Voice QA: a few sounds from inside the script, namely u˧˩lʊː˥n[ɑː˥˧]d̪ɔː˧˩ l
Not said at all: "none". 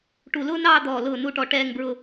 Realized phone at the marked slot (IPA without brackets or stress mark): ɑː˥˧